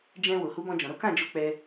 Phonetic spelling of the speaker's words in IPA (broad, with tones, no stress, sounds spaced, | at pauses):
d͡ʒ ɛ̃˧ w o˨ h u˨˦ b ɔ̃˧ d͡ʒ ɔ̃˨ ɾ o˨˦ k ã˦˨ d͡ʒ o˧ k͡p ɛ˦